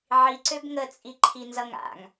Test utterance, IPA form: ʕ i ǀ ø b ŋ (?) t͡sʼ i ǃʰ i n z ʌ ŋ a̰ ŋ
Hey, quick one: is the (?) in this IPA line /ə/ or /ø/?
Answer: ə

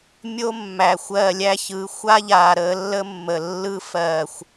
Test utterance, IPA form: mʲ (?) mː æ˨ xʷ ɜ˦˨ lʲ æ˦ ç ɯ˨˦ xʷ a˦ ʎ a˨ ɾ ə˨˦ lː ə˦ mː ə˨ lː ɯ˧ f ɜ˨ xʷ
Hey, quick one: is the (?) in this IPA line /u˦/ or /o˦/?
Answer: o˦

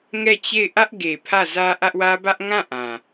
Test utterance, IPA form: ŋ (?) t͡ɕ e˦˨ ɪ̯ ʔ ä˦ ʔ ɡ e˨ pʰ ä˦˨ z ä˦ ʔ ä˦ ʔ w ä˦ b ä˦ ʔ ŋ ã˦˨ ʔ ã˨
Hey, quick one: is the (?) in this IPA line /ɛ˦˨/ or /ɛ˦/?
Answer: ɛ˦˨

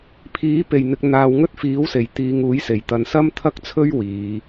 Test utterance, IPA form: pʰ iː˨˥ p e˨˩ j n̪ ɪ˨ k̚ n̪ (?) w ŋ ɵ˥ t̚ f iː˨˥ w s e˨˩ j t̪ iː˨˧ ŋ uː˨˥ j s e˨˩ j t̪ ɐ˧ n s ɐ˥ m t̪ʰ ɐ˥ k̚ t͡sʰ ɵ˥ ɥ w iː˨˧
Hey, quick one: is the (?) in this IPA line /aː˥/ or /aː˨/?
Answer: aː˨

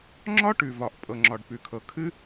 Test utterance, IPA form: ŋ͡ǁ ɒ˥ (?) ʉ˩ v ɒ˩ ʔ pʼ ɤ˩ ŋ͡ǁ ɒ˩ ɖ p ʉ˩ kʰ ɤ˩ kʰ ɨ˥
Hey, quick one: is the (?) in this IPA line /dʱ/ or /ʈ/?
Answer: ʈ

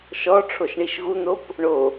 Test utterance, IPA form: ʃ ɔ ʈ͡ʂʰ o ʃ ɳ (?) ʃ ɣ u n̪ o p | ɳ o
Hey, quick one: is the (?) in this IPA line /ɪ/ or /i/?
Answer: i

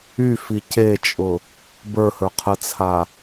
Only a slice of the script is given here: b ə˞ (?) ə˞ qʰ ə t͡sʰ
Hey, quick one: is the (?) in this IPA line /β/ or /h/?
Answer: h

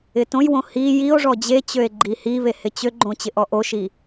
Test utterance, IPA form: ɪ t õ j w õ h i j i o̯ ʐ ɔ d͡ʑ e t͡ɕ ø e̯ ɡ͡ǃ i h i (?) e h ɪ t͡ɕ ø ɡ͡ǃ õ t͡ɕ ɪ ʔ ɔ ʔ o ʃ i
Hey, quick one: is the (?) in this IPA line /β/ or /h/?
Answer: β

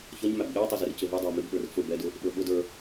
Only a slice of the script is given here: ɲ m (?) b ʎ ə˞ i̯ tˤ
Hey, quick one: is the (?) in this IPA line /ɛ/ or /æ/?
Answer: æ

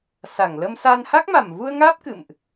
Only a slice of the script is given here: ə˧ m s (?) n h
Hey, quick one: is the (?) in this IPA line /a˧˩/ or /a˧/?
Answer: a˧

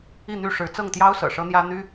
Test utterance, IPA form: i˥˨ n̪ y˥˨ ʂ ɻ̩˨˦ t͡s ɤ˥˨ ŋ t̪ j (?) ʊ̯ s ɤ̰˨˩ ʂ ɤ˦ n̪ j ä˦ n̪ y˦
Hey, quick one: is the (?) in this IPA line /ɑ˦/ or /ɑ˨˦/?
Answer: ɑ˦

